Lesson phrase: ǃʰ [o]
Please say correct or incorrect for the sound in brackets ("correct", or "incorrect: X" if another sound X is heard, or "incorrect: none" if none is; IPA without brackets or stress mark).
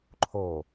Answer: correct